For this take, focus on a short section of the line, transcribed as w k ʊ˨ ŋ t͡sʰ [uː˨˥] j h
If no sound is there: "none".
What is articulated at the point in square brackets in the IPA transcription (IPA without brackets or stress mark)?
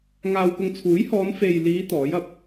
uː˨˥